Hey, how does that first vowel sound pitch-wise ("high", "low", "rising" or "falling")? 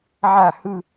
falling